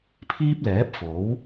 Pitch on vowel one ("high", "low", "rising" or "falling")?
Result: high